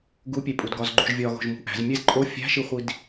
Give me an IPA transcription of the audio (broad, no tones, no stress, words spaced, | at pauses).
ɡupʲepʼudɡɒz ɡ͡ǃuʒvʲɒɣo̤ʒ mṳʔæ̤z mʲezǃʼo fʲæ̤ʃiχʷid